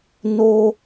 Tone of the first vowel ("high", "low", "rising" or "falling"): high